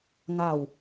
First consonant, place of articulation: velar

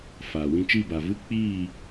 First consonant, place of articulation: labial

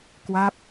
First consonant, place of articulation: velar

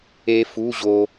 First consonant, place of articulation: labial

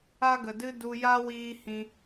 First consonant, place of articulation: velar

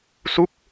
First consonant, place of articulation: alveolar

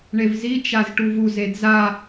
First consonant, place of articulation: retroflex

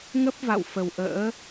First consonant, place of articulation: velar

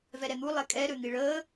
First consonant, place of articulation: labial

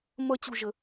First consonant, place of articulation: labial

